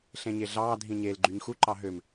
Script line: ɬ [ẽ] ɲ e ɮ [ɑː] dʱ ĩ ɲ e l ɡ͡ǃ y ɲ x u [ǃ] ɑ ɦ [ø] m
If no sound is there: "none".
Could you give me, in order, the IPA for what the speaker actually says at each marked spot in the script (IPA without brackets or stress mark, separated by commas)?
ẽ, ɑː, ǃ, ø